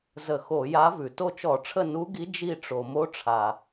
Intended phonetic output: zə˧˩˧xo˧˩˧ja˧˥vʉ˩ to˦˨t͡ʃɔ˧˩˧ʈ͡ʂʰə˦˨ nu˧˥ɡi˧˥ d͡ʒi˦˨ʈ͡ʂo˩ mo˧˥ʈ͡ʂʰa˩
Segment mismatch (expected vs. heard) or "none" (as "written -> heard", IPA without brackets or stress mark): none